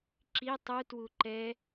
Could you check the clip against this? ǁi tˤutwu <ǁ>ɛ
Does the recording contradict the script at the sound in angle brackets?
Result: yes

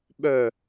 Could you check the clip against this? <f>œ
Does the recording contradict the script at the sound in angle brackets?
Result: yes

